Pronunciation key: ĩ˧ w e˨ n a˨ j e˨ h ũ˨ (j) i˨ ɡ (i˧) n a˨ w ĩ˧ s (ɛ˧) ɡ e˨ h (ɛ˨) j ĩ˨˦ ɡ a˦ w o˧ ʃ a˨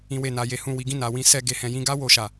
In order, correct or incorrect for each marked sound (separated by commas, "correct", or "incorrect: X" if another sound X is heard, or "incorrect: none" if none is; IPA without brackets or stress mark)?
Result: incorrect: w, incorrect: ĩ˧, correct, incorrect: ɛ̃˨